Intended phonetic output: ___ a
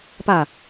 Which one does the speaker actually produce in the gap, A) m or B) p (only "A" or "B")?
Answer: B